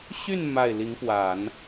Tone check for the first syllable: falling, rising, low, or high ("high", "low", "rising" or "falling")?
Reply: falling